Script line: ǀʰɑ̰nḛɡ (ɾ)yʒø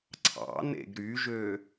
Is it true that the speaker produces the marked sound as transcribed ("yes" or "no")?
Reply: yes